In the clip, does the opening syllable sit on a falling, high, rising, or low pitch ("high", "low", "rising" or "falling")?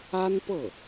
high